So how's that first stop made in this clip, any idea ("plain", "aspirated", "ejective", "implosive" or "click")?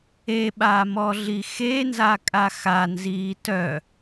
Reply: implosive